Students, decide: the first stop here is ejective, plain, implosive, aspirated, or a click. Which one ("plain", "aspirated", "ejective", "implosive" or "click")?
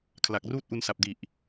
aspirated